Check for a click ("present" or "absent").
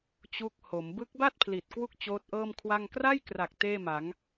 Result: absent